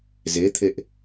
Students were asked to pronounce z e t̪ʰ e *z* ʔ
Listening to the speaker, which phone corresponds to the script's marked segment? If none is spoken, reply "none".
none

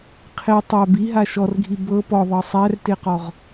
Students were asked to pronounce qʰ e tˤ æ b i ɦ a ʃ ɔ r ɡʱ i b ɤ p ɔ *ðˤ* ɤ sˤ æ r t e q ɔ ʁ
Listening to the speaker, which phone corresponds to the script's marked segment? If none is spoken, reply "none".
ðˤ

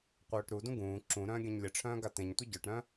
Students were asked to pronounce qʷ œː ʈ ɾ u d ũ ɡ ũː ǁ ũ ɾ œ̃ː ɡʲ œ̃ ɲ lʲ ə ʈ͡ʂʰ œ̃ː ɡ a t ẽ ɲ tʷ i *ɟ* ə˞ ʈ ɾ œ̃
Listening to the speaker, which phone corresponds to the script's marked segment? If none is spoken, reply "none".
ɟ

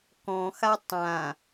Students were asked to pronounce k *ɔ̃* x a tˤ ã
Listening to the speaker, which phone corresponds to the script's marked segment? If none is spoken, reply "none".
ɔ̃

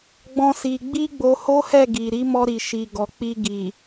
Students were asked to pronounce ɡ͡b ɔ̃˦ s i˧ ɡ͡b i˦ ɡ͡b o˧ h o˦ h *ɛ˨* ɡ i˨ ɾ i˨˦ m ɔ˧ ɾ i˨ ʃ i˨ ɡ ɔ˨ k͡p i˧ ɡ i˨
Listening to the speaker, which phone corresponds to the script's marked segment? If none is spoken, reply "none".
ɛ˦˨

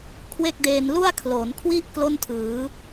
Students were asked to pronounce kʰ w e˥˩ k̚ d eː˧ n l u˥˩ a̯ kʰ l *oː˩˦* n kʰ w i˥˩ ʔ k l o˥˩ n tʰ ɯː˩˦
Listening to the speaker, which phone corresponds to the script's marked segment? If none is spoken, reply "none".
oː˩˦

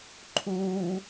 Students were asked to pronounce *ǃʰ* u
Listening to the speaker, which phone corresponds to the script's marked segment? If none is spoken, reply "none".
ǃʰ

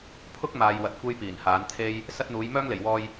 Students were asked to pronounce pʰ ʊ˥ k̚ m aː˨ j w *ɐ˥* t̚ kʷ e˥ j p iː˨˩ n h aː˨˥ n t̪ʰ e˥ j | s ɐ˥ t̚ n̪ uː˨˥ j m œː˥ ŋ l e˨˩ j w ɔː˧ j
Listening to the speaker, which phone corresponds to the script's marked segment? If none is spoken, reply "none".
ɐ˨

